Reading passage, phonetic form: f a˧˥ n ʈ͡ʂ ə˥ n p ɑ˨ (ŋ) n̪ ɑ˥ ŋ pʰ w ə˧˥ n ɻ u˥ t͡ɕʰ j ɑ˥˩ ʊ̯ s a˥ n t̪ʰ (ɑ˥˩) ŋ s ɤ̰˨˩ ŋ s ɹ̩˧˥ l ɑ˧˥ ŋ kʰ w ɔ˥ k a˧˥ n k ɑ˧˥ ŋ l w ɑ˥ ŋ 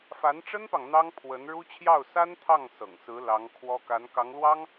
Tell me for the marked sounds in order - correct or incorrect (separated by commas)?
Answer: correct, correct